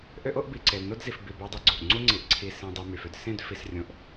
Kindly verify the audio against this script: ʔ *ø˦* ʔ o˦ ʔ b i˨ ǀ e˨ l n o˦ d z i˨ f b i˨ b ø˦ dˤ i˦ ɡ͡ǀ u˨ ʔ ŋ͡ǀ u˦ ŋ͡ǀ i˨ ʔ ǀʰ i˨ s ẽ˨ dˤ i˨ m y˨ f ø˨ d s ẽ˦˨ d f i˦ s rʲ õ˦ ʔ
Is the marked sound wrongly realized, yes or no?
no